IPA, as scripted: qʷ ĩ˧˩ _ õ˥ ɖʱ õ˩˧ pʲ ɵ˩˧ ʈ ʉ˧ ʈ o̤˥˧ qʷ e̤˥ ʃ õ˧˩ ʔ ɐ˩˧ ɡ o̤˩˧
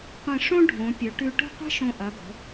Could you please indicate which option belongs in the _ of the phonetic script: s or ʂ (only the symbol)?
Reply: ʂ